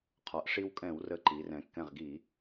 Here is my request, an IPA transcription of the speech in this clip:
qʰɒ˩˧ʔʂi˧wkʼɛ̃˧˩˧w rə˧ǃi˩˧rɛ̃˩˧ kːɛ̃˧˩ʁɡi˧˩˧

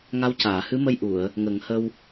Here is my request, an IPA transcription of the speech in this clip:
ŋa˧˥wcaː˨˩˨hɨ˧˥mə˧j ʔu˨˩˨ə̯ | ŋə˨˩˦ŋ hə˧w

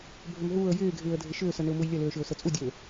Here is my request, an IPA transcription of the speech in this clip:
bʱʏmɦuːə̯ jɪːɡʱɪːə̯dʱɪ ʃʏːsənʏʊ̯ mujlʲəløː ʃʏʊ̯sət͡sʼudʲøː

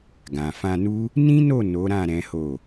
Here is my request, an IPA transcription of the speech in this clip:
ɡã˨fã˧nu˦ | nĩ˦no˦˨ no˨˦ɾã˦˨ ɾɛ̃˨˦ho˦˨

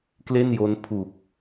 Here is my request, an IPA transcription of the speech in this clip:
kle˥˩njo˦˥npʰu˨˩k̚

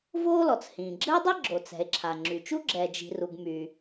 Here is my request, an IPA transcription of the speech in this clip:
voː˥lɔ˩t͡s hĩː˩ɡ͡ǁɘː˥dˤi˥ ɡ͡ǁo˩t͡sɛ̤˩e̯ ǁʰa˩ŋ͡ǁy˩t͡ʃu˥ ɡ͡ǁɛ˩d͡ʒi̤˩ru˩ɡ my˩

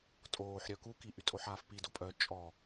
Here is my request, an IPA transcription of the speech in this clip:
tʼoːħɾʲœ kukiʔytʼoħ aːfpido pʼœ t͡ʃʼɔ

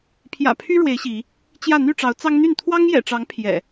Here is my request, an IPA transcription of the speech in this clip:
pʰjä̰˨˩pʰy˦ ɻwe˨˦ɪ̯ ɕi˨˦ | t͡ɕjä˥˨ n̪y˥˨ʈ͡ʂɑ˨˦ʊ̯t͡sɑ˦ŋn̪y˥˨n t̪ʰwɑ˦ŋjɛ̰˨˩ʈ͡ʂɑ˨˦ŋ pʰjɛ̰˨˩

